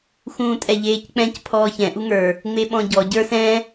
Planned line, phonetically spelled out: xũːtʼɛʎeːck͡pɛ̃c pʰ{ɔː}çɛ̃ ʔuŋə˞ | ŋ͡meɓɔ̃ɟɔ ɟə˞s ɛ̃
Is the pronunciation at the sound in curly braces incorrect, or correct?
correct